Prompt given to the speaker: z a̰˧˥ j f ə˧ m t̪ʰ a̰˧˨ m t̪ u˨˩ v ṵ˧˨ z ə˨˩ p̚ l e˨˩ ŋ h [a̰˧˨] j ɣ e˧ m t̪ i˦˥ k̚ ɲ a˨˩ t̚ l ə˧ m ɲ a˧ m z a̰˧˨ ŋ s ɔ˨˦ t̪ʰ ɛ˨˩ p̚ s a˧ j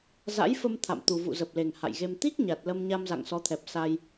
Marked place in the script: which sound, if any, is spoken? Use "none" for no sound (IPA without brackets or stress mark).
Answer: a̰˧˨